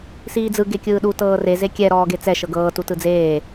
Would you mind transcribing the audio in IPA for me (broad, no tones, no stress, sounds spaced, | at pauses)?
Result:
s iː d͡z ɯ ɡ e kʲ ɯː ɗ u t ɤː r e z e kʲ ɛ ɾ ɔː ɡ e t͡s ɛ ʃ ɤ ɡ ɤː t u t ɯ d͡z eː